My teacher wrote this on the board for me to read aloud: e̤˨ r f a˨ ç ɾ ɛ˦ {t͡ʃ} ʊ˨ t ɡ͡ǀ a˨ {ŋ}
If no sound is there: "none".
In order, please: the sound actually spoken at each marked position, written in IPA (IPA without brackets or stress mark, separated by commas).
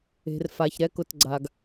k, ɡ